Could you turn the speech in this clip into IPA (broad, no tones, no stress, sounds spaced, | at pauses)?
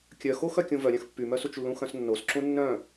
kʲ œ x o x œ kʲ ũ v œ ɾʲ œ̃ x pː y m œ s u t͡ʃ lː ũ x œ̃ s nː o s ǁ ũ nː œ̃